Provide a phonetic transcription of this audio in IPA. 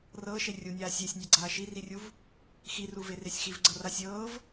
r ɤː ʃ e rʲ u nʲ aː sʲ e sʲ nʲ a ɡ͡ǀ aː ʃ i r i rʲ u v | x i r u v e r e sʲ x i v ɡ͡ǀ ɤ r a sʲ ɤː v

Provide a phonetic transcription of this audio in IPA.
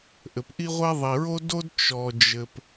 ʔ ɘ˩ p ʔ i˥ ʁʷ ɛ˥ ðˤ i˩ ɹ o˥ d o˥ d t͡ʃ ɔ˩ d͡ʒ ɘ˩ p

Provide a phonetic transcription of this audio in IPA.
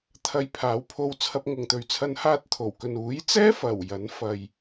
t̪ʰ ɐ˧ j pʰ aː˨˧ w pʰ o˧ w t͡sʰ ɐ˧ p̚ ŋ ʊ˨ ŋ t̪ ɵ˨ ɥ t͡sʰ ɐ˧ n h aː˧ t̚ t̪ʰ o˨˩ w k ɵ˨ n uː˨˥ j t͡s ɛː˥ f ɐ˨˩ w j ɐ˨˥ n f ɐ˨ j

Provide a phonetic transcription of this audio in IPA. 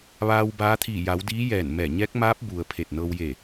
ʋ aː˧ w b aː˧˥ t̪ʰ iː˧˩ j a˩˧ w d iː˧˥ j ɛː˧˩ n m ɛː˧˩ ɲ ɛː˧˥ k̚ m aː˧˥ p̚ b u˩ ə̯ pʰ e˧˩ t̚ n ɤː˧ w j e˧˩

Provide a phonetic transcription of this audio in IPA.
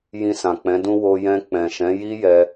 j ĩ˧ s ã˨ k͡p ɛ̃˨˦ d ũ˦ w o˧ j ɛ̃˧ k͡p ɛ̃˨ ʃ ɛ̃˨˦ j i˦ j ɛ˧

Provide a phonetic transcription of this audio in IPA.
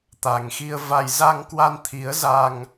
t̪ a˨˩ ŋ x i˧ ə̯ v a˧ j z a˧ ŋ k w a˧ n t̪ʰ i˨˦ ə̯ z a˧ ŋ

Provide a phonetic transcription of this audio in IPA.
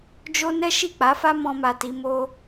d͡ʒ o˦ n ɛ˦ ʃ i˦˨ k͡p a˨˦ f a˦ m ɔ̃˧ m a˨ t i˧ m o˧

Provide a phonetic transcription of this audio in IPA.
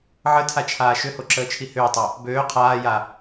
ʕ ə tʰ a t͡ʃʰ aː ʃ ʏ h o ǁ əː t͡ʃʰ i h ʏː tˤ o | b øː qʰ aː j a

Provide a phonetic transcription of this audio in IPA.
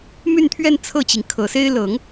m y˥˧ n t̪ʰ ɥ ɛ˥˧ n t͡sʰ ɤ˥˩ t͡ɕ i˩ ŋ kʰ ɤ˨˩ s e˥ ɪ̯ l ɤ˨˩˦ ŋ

